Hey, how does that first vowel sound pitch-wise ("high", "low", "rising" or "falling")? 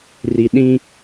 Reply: low